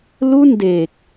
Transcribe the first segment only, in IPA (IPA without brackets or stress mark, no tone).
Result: l